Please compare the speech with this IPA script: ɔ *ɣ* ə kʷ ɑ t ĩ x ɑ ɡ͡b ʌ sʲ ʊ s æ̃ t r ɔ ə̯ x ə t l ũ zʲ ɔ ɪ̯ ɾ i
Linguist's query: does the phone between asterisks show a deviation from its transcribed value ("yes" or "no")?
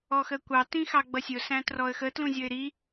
yes